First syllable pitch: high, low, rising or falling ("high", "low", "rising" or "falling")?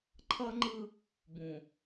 high